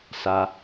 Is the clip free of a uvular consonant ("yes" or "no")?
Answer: yes